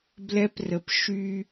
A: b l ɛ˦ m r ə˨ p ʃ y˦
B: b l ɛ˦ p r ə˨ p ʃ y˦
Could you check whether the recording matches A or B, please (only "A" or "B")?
B